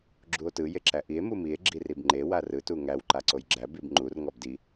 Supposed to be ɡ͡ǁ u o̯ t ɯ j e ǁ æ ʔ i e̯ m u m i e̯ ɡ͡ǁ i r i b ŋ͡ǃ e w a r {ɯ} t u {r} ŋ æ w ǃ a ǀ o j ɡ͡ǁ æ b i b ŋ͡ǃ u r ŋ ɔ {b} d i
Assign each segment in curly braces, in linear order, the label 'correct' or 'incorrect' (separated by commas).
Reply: correct, incorrect, correct